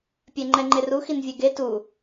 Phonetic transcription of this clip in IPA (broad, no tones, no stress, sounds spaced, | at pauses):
pʲ ɛ ŋ͡ǃ ɛ ŋ͡ǃ e r u x i n vʲ ɛ ɡ e t u